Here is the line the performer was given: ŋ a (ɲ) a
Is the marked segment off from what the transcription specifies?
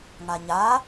no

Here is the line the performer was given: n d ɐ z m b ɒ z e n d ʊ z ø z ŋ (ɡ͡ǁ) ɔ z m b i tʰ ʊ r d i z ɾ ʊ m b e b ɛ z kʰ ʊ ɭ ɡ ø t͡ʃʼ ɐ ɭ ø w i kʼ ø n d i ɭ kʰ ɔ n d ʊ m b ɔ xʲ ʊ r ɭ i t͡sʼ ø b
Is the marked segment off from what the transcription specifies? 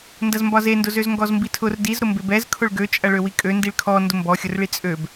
yes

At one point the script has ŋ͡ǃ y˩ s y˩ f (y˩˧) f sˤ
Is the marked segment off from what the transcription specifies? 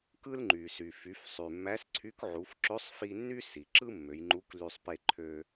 no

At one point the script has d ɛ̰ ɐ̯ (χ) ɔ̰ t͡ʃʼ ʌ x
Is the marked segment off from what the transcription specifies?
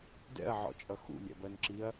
yes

